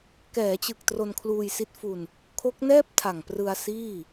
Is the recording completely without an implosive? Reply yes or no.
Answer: yes